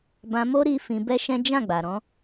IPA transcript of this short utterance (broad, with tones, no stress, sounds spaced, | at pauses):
b ã˧ m o˦ ɾ i˦ f ĩ˧ b ɛ˦ ʃ ɛ̃˦ d͡ʒ ã˦˨ ɡ͡b a˨ ɾ ɔ̃˨˦